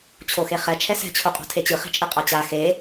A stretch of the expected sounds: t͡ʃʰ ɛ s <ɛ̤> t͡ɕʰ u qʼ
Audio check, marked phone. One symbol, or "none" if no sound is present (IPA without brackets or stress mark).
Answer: ɛ̤